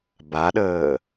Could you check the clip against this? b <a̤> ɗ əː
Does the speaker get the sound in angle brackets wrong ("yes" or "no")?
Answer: yes